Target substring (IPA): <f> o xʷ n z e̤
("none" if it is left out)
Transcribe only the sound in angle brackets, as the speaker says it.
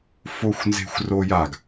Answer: f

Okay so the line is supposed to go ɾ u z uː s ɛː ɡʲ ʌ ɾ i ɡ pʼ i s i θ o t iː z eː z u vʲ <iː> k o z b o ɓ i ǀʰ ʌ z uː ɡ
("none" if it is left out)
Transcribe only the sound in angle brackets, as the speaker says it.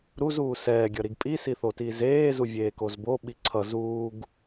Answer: eː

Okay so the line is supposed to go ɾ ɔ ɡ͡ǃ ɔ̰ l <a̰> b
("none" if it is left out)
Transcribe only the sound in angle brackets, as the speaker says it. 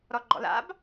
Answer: a̰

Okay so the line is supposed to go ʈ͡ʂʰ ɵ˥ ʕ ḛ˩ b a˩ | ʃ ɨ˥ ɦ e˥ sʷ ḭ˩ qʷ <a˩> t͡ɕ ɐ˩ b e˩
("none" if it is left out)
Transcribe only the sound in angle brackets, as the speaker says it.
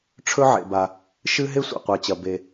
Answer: a˩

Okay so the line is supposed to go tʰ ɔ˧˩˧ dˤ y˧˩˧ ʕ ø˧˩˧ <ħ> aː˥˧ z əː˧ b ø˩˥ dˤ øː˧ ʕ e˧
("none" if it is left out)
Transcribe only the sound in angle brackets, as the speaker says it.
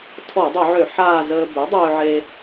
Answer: ħ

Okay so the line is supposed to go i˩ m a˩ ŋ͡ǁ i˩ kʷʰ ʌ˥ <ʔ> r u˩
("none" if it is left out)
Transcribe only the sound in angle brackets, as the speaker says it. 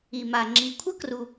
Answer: k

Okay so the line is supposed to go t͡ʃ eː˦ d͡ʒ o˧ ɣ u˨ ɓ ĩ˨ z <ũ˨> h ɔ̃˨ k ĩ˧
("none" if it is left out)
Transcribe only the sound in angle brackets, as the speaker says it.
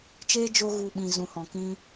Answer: ũ˨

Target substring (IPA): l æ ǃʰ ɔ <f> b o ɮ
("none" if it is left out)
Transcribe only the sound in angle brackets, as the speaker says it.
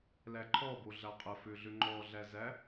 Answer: none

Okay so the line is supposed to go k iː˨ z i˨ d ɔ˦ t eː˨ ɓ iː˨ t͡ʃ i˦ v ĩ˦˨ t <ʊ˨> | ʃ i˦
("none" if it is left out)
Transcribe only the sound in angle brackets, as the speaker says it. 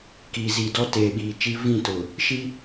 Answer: ʊ˨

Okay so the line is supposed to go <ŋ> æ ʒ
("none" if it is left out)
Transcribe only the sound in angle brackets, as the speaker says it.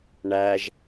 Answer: ɳ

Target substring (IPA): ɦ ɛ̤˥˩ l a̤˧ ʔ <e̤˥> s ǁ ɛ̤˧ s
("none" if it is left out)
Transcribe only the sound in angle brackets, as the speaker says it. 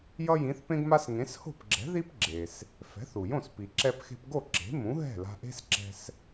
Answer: e̤˥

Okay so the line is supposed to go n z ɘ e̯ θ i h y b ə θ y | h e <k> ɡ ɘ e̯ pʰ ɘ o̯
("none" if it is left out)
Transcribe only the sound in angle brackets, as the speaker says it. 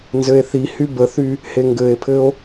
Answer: ŋ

